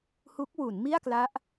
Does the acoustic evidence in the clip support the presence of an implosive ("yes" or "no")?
no